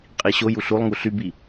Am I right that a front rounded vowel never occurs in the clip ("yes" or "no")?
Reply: no